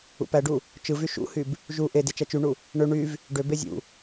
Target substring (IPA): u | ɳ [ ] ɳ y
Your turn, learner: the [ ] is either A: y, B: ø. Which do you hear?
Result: B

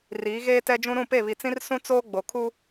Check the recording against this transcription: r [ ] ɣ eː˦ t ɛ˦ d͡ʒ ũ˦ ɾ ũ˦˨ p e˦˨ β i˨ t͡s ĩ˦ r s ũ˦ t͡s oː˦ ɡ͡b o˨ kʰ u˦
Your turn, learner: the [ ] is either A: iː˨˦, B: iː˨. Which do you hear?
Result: A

